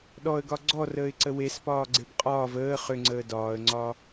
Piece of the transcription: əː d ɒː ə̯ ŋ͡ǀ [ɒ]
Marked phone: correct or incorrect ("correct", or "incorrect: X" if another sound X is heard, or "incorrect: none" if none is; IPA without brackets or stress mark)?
incorrect: ɒː